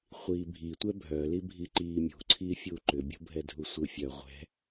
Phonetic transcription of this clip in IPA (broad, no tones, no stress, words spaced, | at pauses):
χʷiːbʱitʷɛ bʱœlibʱi ǃiːmʲṳǀʰiː fʲuːǃʏbʲṳ bʱɛdʱusʷɯfʲœ ʁʷɛ̤